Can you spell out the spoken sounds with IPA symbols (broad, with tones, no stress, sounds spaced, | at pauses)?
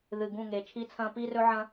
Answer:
ð ɨ˨ ɡ ũ˦˨ ŋ e˨ t͡ʃʰ i˦ t͡sʰ ɐ̃˦ p i˦ r ɵ˦ ʕ ɐ̃˦